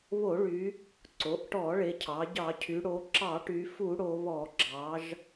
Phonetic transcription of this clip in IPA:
βo˧˩˧ɭy˩˧ | ǀo˩˧ʔʈɔ˧˩˧ɭe˩˧cʰɑ˩˧ ɟɑ˧˩˧cʰy˩˧ ɽo˩˧ ǁɑ˧˩˧ʈy˩˧ fu˧˩˧ ɽo˩˧βɔ˧˩˧ɡ͡ǁɑ˩˧ʒ

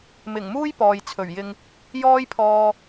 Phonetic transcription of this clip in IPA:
mɪ˨˩ŋmuː˥j pɔː˨jt͡sʰɵ˨˩ɥjɪ˧ŋ | jɔː˥jpʰɔː˧

